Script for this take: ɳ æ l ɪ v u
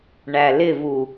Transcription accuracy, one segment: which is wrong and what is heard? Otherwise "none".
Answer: none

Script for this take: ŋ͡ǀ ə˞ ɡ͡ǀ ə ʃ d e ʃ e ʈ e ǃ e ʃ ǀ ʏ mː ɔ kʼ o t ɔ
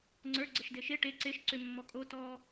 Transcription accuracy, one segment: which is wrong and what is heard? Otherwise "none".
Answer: ǃ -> ǀ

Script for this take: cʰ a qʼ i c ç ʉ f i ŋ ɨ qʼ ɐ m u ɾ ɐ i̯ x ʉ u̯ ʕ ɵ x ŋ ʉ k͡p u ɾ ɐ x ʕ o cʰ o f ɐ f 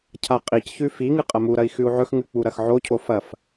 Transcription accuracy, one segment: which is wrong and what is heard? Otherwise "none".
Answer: none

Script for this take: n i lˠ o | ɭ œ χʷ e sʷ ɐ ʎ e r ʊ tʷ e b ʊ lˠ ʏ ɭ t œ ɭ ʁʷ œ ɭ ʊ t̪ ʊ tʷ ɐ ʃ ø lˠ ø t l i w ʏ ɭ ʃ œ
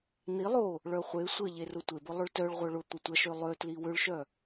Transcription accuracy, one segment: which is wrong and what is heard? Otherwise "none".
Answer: none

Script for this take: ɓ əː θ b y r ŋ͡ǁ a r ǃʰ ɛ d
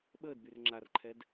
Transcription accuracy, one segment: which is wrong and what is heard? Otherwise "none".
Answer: θ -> d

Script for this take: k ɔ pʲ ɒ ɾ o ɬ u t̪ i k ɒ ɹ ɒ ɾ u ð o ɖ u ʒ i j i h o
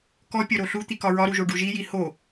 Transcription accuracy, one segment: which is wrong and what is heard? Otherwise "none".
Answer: ð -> ʒ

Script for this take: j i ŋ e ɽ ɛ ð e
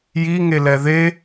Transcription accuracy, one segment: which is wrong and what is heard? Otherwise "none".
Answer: ɽ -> l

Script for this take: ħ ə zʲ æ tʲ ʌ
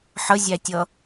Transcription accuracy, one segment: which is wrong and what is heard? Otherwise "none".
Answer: none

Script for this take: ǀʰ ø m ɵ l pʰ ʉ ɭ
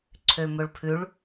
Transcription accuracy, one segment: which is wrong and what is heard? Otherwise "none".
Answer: l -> ɭ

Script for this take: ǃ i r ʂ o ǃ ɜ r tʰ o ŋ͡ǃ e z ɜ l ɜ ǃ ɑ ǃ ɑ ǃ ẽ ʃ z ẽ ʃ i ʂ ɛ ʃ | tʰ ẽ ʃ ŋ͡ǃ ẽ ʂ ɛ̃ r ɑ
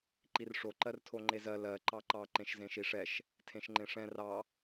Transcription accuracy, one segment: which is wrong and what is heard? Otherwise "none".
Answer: none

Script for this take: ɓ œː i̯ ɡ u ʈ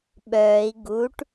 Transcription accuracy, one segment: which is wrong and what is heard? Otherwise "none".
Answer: none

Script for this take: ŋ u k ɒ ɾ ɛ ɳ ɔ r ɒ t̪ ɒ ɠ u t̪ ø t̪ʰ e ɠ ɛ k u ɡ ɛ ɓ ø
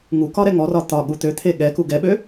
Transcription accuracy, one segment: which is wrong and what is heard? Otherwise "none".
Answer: ɳ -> ŋ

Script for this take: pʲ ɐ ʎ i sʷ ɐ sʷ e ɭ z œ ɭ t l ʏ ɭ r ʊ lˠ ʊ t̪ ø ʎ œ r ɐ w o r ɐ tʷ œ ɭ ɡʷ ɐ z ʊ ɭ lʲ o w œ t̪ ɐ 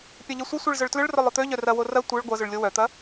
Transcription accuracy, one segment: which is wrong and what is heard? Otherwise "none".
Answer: none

